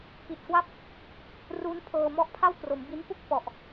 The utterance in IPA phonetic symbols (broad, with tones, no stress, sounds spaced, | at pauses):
p i˨˩ t̚ k w a˦˥ p̚ | r u˦˥ n pʰ ɤː˧ m ɔ˦˥ ʔ pʰ a˥˩ w k r o˩˦ m b i˦˥ n p u˥˩ k̚ f ɔ˨˩ ʔ